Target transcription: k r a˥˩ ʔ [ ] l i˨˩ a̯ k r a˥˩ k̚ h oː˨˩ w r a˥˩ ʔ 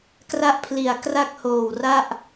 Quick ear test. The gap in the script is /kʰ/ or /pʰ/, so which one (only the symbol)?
pʰ